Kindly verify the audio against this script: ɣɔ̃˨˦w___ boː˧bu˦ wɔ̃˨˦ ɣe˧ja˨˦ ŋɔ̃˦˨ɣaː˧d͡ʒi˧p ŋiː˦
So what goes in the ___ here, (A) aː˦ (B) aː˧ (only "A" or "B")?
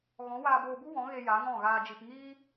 B